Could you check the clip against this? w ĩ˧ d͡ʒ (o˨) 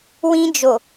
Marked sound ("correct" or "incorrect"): correct